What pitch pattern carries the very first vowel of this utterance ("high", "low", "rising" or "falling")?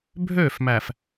falling